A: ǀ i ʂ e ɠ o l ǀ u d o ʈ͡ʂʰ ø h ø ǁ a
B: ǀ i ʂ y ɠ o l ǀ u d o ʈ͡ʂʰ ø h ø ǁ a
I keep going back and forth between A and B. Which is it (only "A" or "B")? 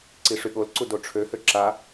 B